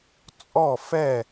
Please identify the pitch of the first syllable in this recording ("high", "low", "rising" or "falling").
falling